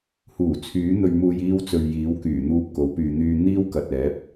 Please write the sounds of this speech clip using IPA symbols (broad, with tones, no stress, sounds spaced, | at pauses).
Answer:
h uː˨˩ t͡sʰ yː˨˥ n̪ ɵ˧ ɥ m uː˧ j iː˧ w t͡s ɵ˨ ɥ j iː˨˥ w k yː˨˩ n̪ uː˥ p̚ k o˨˥ w p yː˧ n̪ yː˥ n̪ iː˥ w k ɐ˨ t̚ ɛː˨˥ p̚